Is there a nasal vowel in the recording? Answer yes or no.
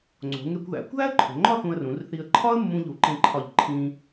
yes